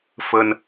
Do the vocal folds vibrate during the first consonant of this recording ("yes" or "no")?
no